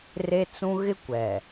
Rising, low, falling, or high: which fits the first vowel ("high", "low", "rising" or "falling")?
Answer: high